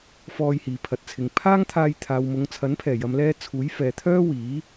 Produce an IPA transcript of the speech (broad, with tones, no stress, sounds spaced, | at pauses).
f ɔː˧ j h iː˨ pʰ ɐ˨ t̚ t͡sʰ ɪ˨ ŋ pʰ aː˥ ŋ t̪ʰ aː˧ j t̪ʰ aː˨ w m ʊ˨˧ ŋ t͡sʰ ɐ˨˥ n pʰ ɛː˨˩ j ɐ˨ m l ɛː˧ t͡sʰ uː˨˥ j f ɛː˨ t̪ʰ œː˥ w iː˨˥